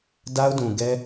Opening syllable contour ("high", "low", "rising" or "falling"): high